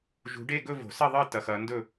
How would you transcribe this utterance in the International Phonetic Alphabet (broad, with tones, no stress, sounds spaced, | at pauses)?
ʒ ṳ˨˦ ɖ e˥˧ ɡ ɵ˥˧ v o̤˨˩˦ s ɐ˥˧ ðˤ ɨ˥˧ t ɐ˨˦ x ɐ˨˦ n d ɵ˥˧